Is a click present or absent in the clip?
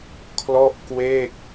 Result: absent